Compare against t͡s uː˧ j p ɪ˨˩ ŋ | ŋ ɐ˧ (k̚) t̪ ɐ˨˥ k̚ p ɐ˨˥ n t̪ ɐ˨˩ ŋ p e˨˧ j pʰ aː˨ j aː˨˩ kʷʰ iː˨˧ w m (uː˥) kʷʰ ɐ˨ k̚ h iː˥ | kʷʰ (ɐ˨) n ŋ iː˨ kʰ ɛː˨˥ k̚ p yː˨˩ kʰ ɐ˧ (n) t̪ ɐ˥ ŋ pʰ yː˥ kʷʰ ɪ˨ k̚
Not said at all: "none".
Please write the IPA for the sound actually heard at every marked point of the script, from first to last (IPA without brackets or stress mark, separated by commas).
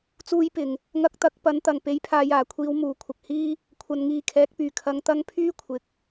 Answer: k̚, uː˨˩, ɐ˨, ŋ